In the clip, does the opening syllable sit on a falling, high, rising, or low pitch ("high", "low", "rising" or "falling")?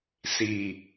low